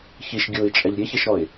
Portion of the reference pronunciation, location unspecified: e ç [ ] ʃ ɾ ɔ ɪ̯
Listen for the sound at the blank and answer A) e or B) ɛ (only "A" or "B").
A